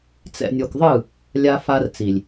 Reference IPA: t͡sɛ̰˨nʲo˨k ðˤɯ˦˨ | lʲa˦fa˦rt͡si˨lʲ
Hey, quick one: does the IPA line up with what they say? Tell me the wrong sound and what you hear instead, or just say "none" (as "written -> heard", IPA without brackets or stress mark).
none